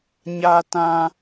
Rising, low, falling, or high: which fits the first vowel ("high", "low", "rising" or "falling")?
high